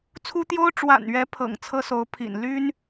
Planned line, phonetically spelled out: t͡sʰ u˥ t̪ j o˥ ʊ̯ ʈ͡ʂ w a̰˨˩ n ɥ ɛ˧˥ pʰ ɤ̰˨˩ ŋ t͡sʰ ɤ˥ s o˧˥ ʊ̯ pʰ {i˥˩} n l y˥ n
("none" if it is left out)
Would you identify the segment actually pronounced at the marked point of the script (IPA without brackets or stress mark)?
ḭ˨˩